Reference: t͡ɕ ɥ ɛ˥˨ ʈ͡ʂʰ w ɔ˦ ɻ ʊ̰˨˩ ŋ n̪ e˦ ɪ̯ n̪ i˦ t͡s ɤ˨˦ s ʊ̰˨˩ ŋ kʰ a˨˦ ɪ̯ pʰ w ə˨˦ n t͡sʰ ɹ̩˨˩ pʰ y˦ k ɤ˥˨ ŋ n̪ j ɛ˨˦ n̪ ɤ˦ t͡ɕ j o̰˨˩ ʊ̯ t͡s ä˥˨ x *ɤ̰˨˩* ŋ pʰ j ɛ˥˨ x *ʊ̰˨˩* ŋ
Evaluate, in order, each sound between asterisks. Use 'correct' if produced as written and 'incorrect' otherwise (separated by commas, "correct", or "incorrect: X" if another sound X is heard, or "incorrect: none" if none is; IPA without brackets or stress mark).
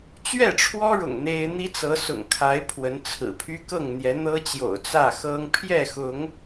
incorrect: ɤ˦, incorrect: ʊ˨˦